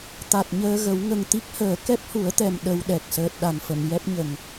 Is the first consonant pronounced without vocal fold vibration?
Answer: yes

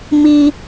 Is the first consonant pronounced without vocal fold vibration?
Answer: no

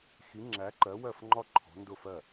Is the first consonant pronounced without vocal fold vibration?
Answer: yes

